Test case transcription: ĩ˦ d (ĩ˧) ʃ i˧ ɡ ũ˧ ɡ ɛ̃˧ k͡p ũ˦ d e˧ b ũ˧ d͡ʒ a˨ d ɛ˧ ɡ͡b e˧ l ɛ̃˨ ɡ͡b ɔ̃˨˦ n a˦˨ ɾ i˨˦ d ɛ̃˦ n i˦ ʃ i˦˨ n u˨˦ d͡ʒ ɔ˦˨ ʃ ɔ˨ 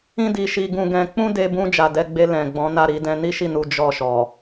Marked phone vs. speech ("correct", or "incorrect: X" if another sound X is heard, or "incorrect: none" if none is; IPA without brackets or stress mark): incorrect: i˧